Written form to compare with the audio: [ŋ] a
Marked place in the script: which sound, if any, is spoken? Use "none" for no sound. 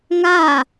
ŋ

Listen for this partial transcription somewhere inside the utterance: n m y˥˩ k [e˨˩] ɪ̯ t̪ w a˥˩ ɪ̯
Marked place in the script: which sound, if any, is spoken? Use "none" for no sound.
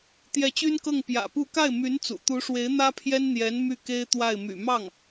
e˥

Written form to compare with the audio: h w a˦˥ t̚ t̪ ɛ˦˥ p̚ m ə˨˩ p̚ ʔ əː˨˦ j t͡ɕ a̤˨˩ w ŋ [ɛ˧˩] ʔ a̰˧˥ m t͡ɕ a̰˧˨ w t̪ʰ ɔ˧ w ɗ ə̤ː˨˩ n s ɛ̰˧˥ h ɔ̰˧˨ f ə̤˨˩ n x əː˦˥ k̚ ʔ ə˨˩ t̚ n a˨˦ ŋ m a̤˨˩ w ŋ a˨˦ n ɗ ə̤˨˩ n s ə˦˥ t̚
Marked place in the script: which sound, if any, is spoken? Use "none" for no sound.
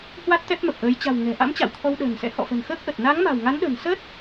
ɛ̤˨˩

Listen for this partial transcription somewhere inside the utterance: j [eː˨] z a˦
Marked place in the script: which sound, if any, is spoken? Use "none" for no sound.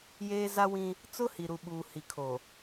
eː˦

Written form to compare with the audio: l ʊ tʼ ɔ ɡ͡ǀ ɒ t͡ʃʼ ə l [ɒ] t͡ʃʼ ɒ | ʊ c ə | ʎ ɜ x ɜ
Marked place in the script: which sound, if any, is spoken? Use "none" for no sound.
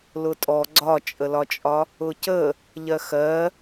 ɒ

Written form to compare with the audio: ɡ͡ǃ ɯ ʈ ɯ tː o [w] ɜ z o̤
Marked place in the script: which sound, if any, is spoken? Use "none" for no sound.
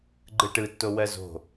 w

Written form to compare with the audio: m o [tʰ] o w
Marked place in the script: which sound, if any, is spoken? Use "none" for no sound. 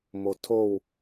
tʰ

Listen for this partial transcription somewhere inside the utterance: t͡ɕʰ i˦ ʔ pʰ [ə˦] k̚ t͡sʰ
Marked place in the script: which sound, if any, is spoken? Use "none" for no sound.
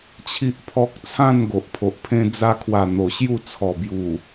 ɔ˦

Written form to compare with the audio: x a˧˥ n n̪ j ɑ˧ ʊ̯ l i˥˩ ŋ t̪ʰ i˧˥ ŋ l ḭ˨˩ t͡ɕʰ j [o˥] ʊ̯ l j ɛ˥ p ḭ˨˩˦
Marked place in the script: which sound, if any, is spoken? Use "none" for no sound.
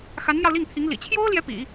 o˥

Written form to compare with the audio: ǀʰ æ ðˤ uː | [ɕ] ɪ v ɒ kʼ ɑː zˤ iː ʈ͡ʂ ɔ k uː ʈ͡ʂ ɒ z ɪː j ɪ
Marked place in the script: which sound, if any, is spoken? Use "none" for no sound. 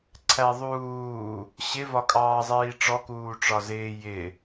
ɕ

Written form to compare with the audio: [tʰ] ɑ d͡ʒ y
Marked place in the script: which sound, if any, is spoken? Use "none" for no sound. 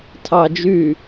tʰ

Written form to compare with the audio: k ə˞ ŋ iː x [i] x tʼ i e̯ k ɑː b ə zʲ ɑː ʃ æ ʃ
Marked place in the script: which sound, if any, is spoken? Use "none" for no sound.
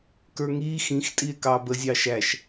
ĩ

